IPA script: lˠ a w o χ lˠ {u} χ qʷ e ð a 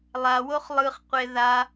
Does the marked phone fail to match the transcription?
yes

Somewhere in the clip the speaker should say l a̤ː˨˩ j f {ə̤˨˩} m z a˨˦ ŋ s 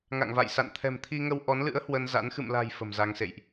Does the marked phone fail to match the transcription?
no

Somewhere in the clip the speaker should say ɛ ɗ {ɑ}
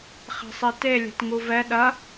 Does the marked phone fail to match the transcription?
yes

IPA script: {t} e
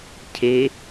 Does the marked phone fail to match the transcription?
yes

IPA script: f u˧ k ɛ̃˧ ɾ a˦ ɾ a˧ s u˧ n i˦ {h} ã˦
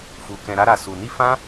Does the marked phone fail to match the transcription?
yes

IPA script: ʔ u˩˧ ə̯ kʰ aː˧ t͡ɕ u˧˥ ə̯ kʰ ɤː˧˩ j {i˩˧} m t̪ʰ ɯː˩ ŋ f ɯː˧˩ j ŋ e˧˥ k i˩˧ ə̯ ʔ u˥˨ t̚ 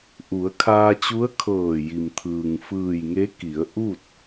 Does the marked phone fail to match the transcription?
yes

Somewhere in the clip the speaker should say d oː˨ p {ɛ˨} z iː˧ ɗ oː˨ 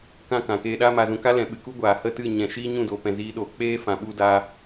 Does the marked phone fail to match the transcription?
yes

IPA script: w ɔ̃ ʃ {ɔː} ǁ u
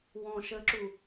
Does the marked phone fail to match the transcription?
yes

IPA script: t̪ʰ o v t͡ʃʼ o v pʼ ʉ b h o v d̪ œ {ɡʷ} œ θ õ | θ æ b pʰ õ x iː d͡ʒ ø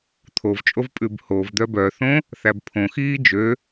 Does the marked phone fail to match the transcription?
yes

